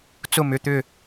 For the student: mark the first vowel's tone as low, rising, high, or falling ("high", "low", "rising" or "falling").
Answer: falling